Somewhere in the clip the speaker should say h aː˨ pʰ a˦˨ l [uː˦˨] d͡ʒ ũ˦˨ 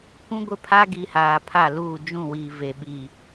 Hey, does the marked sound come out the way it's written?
yes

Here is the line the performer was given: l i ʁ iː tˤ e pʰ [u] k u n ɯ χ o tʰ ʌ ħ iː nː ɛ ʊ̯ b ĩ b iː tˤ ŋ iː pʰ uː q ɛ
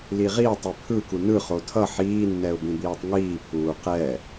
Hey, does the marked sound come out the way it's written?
no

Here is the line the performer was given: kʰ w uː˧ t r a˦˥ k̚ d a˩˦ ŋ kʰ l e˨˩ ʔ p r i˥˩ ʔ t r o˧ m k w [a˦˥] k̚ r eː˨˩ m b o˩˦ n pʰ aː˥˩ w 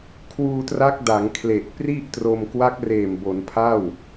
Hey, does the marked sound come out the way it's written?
yes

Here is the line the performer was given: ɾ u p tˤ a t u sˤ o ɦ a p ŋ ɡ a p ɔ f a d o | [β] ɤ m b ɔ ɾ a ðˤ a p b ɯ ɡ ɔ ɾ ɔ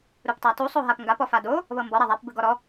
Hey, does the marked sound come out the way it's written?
yes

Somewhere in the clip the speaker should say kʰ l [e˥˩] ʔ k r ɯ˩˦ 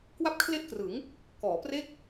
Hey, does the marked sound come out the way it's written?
yes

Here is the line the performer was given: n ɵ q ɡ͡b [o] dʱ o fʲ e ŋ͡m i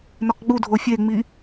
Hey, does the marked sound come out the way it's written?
no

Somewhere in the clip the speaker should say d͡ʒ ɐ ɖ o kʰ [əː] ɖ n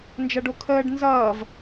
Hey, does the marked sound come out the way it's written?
yes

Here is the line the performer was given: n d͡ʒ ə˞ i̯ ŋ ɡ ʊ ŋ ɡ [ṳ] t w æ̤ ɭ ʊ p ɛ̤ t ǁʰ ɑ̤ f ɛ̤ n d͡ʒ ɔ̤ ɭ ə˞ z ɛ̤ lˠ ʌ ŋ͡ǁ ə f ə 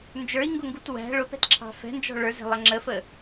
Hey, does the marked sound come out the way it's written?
no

